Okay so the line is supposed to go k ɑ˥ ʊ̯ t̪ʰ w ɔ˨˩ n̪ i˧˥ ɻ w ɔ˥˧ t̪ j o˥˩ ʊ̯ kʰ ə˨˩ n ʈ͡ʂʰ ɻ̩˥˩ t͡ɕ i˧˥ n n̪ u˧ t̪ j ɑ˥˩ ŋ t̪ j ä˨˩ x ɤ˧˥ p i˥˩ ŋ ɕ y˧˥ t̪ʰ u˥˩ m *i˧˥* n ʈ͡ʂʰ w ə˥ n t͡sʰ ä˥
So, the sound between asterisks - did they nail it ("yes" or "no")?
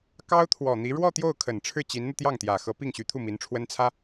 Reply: yes